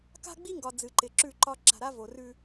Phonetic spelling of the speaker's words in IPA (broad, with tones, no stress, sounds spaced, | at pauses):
k a̤˦ ɡ͡b i˦ ŋ ɡ ɒ˨ d͡z ɨ˨ ǃ ɪ˨ ǁ ʉ˦˨ ǃ ɒ˦ ǁ a̤˨ ɾ a˦ v o˨ r ʉ˦